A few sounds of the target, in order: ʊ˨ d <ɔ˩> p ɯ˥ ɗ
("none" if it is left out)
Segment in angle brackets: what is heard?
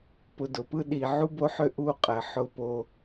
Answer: ʊ˩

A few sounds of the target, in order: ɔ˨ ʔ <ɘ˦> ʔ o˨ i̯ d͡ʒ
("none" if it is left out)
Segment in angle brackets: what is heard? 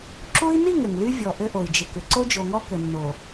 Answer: ɘ˦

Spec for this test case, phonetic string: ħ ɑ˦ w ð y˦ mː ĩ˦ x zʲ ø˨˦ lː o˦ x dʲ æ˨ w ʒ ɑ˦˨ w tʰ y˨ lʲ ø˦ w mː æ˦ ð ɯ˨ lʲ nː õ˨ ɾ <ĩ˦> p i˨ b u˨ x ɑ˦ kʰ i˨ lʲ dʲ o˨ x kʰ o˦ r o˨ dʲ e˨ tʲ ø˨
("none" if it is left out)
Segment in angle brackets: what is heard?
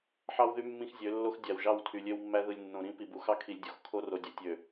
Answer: ĩ˦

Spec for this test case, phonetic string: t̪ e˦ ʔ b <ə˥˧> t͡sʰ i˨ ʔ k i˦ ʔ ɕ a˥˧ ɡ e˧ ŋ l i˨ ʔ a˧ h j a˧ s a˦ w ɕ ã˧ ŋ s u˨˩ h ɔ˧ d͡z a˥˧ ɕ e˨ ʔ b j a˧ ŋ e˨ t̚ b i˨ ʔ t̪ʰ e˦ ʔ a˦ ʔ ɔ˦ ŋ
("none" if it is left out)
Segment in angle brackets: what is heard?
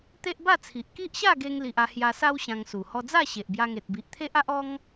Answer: a˥˧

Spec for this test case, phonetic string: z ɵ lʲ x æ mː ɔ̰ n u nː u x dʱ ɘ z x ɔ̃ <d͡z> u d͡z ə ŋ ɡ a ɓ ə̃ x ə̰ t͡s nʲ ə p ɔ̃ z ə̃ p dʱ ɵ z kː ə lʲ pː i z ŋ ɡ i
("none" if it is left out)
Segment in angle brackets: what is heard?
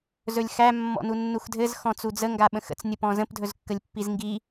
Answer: t͡s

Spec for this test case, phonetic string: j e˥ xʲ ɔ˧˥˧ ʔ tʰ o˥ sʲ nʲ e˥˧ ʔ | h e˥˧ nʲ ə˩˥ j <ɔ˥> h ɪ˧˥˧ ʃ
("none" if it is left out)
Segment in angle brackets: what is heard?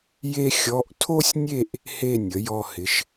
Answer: ɔ˥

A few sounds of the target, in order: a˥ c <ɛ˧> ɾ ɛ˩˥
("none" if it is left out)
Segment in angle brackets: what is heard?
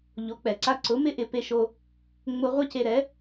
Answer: e˧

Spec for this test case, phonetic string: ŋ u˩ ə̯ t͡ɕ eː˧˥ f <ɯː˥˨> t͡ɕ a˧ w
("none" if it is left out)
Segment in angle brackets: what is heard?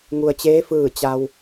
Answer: ɯː˧˩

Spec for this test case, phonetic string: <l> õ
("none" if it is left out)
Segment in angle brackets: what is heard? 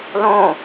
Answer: l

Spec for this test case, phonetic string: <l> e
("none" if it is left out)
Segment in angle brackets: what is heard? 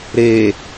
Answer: ɾ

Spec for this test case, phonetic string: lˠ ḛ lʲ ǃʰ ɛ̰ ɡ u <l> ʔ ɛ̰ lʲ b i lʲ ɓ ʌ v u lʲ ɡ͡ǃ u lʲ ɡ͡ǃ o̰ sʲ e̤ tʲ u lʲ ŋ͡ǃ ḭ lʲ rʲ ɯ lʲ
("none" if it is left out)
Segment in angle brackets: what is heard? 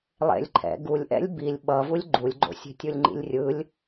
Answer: lʲ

